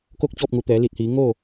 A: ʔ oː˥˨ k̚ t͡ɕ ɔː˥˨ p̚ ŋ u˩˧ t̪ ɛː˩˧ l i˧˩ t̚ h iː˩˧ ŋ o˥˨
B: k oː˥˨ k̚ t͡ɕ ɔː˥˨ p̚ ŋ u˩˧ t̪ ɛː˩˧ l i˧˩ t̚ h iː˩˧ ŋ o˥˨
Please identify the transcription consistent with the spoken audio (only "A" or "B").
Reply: B